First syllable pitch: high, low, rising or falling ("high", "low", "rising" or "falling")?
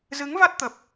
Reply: rising